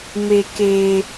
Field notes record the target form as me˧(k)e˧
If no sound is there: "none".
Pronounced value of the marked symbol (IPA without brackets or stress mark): k